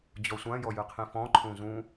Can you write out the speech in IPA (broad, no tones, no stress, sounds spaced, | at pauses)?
d͡ʑ ɔ sʷ ã j ɔ j ɨ qʰ ĩ f ɔ̃ ǃʰ ũ z ũ